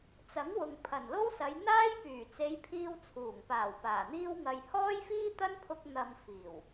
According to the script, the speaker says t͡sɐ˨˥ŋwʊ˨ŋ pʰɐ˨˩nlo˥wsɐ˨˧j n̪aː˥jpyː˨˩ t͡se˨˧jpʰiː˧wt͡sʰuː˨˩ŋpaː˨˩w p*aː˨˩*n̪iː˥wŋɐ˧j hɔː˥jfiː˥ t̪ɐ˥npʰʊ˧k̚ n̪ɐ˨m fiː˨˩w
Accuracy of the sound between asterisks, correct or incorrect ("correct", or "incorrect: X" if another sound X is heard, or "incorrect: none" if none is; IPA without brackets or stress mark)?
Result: correct